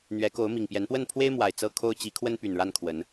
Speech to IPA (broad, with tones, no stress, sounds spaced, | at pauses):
n̪ ɥ ɛ˨˦ k o˨˦ ʊ̯ m i˨˩ ŋ p j ɛ˨˦ n p w ə˥˨ n pʰ w e˦ ɪ̯ m w a˨˩ ɪ̯ t͡s ɤ˦ kʰ o˦ ʊ̯ t͡ɕ i˨˦ kʰ w ə˦ n p y˨˩ n ɻ a˥˨ n kʰ w ə˨˦ n